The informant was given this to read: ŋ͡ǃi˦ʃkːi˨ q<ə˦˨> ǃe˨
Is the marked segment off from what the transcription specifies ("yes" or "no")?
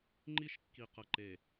yes